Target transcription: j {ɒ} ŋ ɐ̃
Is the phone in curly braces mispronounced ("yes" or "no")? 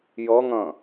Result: yes